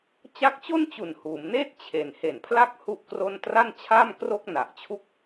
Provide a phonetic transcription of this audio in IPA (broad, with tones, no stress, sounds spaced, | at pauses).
t͡ɕ a˦˥ k̚ t͡ɕ o˥˩ n t͡ɕ u˨˩ n h uː˩˦ m n eː˥˩ t̚ t͡ɕʰ e˨˩ n h e˨˩ n pʰ l a˥˩ k̚ h u˥˩ ʔ k r o˥˩ n t r a˥˩ n t͡ɕʰ aː˥˩ m k r o˥˩ k̚ n a˨˩ ʔ t͡ɕʰ u˥˩ k̚